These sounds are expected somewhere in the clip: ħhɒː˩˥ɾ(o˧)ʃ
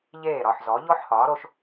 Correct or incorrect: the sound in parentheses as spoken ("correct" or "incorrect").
correct